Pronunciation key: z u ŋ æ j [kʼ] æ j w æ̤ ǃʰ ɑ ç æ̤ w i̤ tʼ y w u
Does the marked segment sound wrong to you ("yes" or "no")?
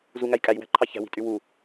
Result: no